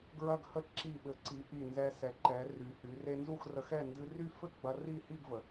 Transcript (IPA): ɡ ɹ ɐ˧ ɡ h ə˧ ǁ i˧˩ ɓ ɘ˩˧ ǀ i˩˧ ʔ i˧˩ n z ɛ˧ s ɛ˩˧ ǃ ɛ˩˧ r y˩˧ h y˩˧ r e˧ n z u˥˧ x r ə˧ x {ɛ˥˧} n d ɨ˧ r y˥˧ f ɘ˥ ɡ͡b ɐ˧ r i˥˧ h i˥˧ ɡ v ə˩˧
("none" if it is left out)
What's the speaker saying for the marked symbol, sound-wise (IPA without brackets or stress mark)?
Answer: ɛ˥˧